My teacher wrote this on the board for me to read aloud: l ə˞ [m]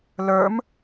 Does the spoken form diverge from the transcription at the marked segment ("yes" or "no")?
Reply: no